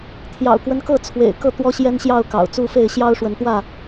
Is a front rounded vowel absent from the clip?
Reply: yes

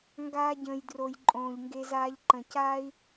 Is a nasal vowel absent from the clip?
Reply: no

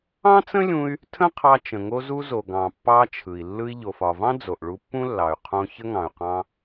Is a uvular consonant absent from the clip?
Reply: no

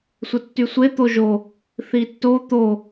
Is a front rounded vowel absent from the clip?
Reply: no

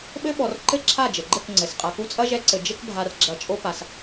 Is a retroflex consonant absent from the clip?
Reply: yes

